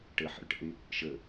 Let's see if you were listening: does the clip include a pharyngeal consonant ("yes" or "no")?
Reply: yes